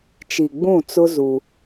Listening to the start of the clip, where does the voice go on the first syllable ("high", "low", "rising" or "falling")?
low